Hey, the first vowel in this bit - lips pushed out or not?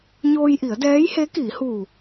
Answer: yes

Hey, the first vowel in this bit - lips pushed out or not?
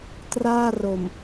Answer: no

